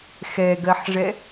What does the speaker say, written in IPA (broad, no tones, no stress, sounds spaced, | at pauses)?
x ɛ ɡ ɜ ħ ʐ ɛ